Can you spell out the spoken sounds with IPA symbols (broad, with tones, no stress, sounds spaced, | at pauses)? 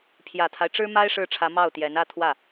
pʰ j ä˨˩ t̪ʰ a˦ ɪ̯ ʈ͡ʂ ɻ̩˥ m a˥ ɪ̯ ʂ ɻ̩˥˩ ʈ͡ʂʰ ä˧˥ m ɑ˥˩ ʊ̯ t̪ j ɛ˧˥ n ä˥˧ t̪ʰ w ä˥˩